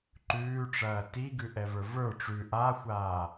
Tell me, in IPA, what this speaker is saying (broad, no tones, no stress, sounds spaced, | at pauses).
ǃ ʉː ʈ͡ʂ ɐː t i ɡ ʉ ʔ ɛ v ə˞ v ə˞ ʈ͡ʂ ʉ ʔ aː xʷ aː